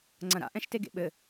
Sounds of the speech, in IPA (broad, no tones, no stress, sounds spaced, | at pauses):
ŋ͡ǀ ɐ̃ ɾ a̰ ʔ ɛ̃ ʃ t e ɡ ḛ ɓ ɘ